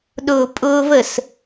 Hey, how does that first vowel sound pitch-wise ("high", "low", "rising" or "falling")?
low